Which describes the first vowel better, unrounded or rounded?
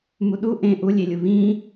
rounded